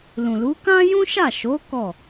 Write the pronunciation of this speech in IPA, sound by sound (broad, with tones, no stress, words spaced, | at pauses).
lũ˨lu˨˦ kã˦jũ˦ʃa˦˨ʃo˨˦ kɔ˦˨